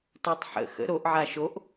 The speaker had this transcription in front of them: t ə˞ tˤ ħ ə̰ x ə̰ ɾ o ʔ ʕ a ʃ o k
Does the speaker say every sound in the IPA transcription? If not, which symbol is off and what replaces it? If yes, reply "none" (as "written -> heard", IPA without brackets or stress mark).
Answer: k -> ʔ